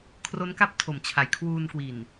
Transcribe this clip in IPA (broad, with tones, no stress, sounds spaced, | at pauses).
kʰ r o˦˥ n k a˦˥ p̚ tʰ o˩˦ m t͡ɕʰ a˩˦ j kʰ w uː˧ n k w i˨˩ n